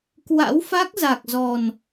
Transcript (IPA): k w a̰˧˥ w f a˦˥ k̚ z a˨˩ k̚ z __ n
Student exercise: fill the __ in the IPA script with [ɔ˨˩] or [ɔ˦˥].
ɔ˨˩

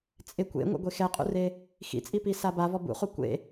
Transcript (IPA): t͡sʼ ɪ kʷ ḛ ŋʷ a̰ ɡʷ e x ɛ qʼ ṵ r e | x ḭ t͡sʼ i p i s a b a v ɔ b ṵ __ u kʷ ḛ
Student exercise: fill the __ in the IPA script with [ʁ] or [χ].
χ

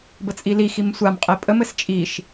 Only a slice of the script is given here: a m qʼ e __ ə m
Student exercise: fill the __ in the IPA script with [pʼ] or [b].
pʼ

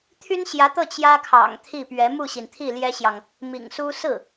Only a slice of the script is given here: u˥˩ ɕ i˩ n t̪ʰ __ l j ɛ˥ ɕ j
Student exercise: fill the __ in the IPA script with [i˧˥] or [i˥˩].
i˥˩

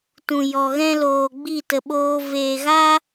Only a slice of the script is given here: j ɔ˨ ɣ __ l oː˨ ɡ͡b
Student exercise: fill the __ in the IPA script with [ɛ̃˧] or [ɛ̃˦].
ɛ̃˦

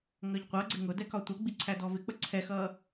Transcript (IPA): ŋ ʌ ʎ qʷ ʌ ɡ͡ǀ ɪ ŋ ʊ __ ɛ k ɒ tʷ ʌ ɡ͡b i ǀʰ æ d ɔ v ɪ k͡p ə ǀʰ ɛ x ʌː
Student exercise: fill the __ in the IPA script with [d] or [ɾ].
d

